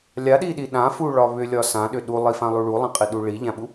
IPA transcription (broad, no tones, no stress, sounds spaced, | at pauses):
lʲ a ɗ i ɗ i ɗ ã f u ɭ ɒ β ʏ lʲ ɒ s ã ɗ ʏ ɗ u lˠ i f ã lˠ u ɭ u lˠ ã qʼ i ɗ u ɭ i ʎ ã ɓ u